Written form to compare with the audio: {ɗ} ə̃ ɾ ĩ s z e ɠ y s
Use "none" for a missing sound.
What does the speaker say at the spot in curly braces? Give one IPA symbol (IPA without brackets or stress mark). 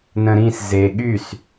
n